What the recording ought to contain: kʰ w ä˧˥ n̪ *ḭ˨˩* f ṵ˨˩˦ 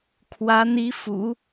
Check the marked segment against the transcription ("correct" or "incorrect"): incorrect